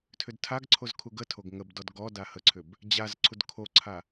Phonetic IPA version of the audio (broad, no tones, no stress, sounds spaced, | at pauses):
tʰ ʏ d tʰ a ɡ ǀʰ o z kʰ u ɡ ə tʰ o ɡ ŋ ə b d ɔ d ɡ ɔ d a h ə ǀʰ ʏ b | d͡ʑ a z ǀʰ u d kʰ o ǀʰ a